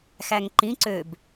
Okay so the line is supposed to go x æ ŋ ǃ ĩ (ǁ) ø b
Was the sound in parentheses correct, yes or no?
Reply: no